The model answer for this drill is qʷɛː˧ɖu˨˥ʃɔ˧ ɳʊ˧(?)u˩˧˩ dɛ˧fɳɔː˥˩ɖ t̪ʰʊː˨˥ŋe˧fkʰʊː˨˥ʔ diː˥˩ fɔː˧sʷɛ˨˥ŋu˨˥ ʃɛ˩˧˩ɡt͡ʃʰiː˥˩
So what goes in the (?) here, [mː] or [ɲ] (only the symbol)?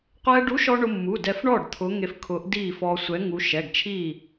mː